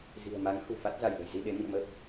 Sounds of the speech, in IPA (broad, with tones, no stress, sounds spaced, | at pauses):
z i̤˨˩ ə̯ m a˨˦ ŋ h ṳ˨˩ f a˦˥ t̚ z a˧˩ j l ə̤˨˩ j z i˧ ɗ e˨˦ m ḭ˧˨ ə̯ m ə˦˥ p̚